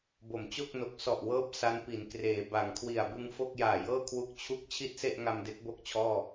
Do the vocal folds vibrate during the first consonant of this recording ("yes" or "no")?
yes